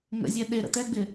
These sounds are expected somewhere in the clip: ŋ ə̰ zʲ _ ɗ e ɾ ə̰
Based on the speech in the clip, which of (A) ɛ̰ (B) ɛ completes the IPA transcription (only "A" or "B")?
B